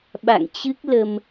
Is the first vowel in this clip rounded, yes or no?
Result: no